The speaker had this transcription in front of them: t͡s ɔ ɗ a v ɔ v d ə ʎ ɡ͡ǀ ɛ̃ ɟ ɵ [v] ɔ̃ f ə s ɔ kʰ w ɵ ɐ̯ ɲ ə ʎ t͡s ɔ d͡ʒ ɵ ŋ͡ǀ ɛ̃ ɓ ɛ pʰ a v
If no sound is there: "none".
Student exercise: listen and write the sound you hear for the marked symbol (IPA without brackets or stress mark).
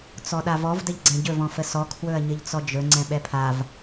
v